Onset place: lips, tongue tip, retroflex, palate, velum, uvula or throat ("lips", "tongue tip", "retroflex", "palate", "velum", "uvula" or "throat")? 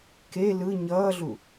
velum